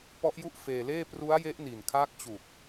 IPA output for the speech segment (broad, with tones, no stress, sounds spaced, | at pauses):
p ɔ˦˥ ʔ j u˥˩ ʔ f eː˧ l eː˥˩ p r u˦˥ a̯ j e˦˥ ʔ n i˨˩ n kʰ aː˦˥ k̚ t͡ɕ u˨˩ k̚